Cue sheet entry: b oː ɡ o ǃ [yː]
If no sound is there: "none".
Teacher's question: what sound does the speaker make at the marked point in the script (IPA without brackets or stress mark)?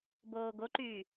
yː